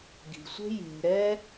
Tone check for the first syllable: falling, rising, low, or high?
low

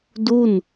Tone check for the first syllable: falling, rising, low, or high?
falling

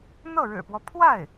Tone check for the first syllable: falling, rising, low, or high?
falling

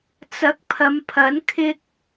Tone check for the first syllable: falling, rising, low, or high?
rising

